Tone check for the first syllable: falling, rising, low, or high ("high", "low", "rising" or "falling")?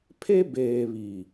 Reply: high